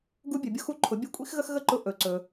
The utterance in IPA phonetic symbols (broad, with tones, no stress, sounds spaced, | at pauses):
ɡ u˧ bʲ ɵ˩ bʲ ʊ˧ x u˧ ǃʰ ʊ˩˧ bʲ ɵ˧˥ kʷʼ ḭ˥ x ɣ ə˥ x ɣ ə˥ ǃ ʊ˧ ʔ ɵ˩ ǀ ɵ˩